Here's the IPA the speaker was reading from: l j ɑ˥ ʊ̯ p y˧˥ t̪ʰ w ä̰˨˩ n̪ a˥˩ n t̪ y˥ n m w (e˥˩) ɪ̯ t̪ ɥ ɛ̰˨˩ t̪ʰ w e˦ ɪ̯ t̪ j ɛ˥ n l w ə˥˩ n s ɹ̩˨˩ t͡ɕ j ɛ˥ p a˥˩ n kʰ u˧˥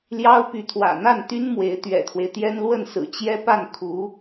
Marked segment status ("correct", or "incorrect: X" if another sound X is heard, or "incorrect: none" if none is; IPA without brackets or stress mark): incorrect: e˧˥